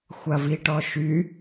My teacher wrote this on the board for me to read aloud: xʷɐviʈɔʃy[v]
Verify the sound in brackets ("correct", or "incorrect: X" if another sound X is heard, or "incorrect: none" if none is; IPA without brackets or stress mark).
incorrect: none